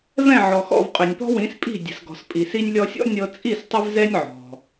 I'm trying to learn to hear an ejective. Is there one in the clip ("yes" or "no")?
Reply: yes